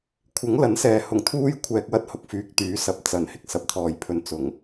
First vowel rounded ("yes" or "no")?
no